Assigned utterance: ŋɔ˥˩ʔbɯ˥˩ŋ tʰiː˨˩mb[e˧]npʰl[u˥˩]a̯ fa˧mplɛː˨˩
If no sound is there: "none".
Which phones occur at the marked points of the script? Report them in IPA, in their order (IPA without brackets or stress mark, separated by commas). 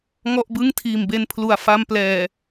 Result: e˧, u˨˩